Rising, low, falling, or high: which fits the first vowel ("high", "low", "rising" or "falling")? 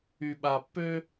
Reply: low